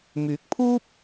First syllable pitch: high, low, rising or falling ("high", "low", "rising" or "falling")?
rising